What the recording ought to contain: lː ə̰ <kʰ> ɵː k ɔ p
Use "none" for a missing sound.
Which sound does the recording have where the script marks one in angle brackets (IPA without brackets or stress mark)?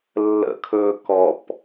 kʰ